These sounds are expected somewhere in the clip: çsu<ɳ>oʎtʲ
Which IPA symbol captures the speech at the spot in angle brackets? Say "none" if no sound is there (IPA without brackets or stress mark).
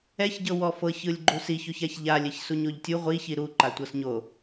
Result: ɲ